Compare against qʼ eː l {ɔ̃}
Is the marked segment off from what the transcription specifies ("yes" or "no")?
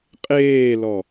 yes